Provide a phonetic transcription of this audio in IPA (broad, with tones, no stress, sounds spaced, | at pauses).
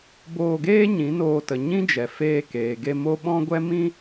b oː˧ ɡ eː˦ ɲ ĩ˨˦ n oː˧ t ə˨ ɲ ĩ˦ d͡ʒ ɛ˨ f eː˧ k eː˨ ɡ e˧ m o˦ ɓ ɔ̃˦ ɡʷ ɛ˦ m ĩ˦